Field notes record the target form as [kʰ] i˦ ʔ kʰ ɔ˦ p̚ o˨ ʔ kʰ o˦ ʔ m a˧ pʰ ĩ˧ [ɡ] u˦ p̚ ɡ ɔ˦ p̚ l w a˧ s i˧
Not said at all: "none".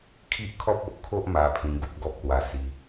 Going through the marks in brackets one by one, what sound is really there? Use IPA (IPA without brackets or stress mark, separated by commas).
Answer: kʰ, ɡ